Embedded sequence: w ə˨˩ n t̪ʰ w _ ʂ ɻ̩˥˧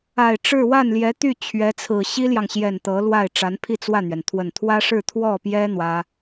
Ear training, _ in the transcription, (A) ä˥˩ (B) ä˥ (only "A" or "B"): B